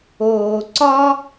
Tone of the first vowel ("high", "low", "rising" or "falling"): low